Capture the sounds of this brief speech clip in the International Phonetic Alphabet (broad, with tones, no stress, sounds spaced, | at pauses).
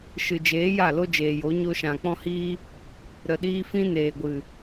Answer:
ʃ ɨ˨ d͡ʒ eː˨˦ j a˦˨ l o˦ d͡ʒ eː˨ j o˨˦ ɲ o˧ ʃ ã˨ k͡p ɔ̃˦ h iː˦ | ɾ ə˨ ɗ iː˧ f ĩ˧ n eː˨ ɡʷ ɨ˨